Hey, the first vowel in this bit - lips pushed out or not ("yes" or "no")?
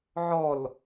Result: yes